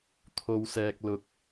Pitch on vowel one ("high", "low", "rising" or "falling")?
low